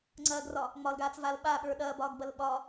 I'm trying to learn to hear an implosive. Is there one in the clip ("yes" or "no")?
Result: yes